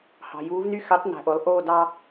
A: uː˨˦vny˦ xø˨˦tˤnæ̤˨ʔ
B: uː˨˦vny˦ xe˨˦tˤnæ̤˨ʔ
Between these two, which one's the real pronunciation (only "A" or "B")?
A